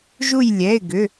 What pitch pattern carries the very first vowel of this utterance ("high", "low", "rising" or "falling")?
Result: falling